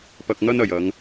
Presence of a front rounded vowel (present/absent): absent